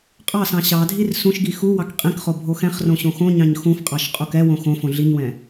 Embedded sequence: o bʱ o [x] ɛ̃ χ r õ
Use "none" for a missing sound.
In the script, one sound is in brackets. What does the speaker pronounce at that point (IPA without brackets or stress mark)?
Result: x